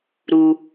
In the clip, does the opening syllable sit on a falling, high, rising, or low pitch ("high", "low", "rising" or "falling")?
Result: low